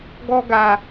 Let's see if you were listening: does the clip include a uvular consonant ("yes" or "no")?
no